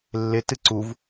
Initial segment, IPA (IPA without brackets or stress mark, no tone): lː